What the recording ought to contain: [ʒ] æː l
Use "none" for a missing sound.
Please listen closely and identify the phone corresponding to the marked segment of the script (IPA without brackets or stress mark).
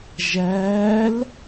ʒ